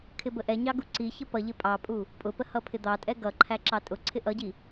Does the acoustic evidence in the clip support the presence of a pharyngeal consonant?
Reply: no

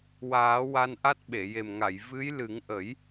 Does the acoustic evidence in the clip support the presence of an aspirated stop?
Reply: no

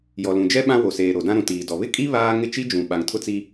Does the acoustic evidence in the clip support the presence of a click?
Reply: no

